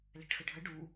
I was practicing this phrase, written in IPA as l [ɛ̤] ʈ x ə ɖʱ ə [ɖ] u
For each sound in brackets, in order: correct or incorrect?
correct, correct

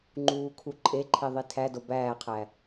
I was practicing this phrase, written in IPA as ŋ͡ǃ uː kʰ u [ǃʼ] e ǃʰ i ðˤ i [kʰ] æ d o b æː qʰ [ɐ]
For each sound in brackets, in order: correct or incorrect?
correct, incorrect: tʰ, incorrect: æ

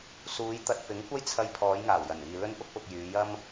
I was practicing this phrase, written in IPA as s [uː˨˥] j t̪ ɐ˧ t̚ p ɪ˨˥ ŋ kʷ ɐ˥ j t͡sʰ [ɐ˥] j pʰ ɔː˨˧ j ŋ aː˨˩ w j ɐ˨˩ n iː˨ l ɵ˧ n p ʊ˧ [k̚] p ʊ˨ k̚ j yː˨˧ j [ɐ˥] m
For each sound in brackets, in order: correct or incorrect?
incorrect: uː˨˧, incorrect: ɐ˧, correct, correct

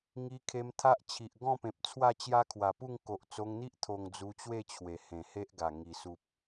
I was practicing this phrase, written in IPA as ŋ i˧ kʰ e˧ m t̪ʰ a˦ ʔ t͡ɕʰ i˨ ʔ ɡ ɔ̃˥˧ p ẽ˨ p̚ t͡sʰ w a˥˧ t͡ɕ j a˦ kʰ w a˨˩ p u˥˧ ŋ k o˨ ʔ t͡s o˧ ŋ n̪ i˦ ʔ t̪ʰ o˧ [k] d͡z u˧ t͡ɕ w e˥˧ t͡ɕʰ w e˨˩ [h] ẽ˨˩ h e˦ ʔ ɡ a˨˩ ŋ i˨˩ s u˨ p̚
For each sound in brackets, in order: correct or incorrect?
incorrect: ŋ, correct

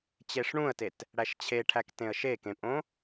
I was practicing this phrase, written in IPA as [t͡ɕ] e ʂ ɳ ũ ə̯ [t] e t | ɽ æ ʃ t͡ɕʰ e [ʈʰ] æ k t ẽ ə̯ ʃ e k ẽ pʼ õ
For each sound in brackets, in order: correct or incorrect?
correct, correct, correct

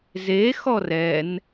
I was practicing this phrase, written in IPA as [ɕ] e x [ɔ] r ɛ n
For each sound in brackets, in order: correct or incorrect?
incorrect: z, correct

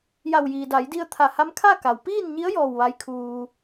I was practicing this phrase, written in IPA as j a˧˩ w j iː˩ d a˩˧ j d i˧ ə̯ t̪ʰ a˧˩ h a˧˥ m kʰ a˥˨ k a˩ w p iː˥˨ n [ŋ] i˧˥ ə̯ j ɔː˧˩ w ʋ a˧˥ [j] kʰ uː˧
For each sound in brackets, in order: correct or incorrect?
incorrect: ɲ, correct

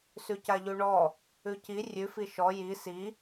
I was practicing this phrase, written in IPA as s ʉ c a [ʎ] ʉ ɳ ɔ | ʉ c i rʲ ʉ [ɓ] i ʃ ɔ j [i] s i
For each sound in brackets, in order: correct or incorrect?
correct, incorrect: f, correct

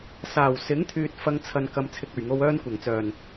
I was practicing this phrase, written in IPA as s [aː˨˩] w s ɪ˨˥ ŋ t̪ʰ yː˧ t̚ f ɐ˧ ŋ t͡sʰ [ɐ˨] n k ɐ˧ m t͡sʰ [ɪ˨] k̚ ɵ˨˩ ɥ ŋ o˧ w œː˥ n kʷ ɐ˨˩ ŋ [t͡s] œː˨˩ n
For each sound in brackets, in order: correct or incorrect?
correct, correct, incorrect: ɪ˧, correct

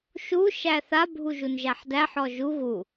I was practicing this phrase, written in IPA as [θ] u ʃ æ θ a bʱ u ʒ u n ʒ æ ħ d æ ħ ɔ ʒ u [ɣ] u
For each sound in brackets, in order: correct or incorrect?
incorrect: ʃ, correct

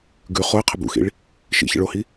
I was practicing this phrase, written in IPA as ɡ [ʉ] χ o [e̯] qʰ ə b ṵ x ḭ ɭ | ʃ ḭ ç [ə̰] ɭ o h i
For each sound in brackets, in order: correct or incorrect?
correct, correct, correct

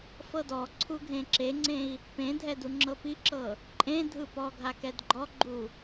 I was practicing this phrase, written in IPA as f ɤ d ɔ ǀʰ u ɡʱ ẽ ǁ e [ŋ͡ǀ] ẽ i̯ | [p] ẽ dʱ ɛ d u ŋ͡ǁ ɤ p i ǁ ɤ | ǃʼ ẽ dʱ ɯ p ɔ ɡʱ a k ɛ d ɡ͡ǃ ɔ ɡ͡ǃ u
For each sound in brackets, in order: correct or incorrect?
correct, correct

